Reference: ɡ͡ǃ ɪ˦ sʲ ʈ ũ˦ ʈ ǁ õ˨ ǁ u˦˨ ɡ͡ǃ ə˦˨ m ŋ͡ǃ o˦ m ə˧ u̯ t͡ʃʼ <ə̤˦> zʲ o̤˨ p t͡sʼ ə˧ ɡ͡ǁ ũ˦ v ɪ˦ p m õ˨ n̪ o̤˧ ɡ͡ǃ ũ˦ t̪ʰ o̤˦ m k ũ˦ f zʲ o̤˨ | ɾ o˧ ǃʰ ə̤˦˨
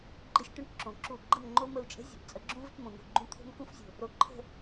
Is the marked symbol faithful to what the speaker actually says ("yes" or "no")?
yes